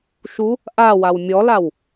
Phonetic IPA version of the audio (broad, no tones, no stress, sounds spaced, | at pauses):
ʃ u | ʔ a w a w mʲ ɔ l a w